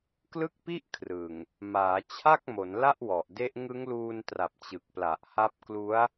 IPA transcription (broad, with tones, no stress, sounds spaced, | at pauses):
k l ɯ˥˩ k̚ p i˥˩ ʔ kʰ r ɯ˨˩ ŋ | m aː˩˦ t͡ɕʰ a˥˩ k̚ m o˩˦ n l a˥˩ ʔ w ɔ˨˩ ʔ d e˦˥ ʔ ŋ ɯ˦˥ ŋ l uː˧ n t r a˨˩ p̚ t͡ɕ ɯ˨˩ k̚ p l a˨˩ ʔ h a˦˥ p̚ k l u˦˥ a̯